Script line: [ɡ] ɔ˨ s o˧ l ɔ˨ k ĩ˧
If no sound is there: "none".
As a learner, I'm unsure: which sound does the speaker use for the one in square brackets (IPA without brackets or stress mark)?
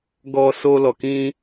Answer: ɡ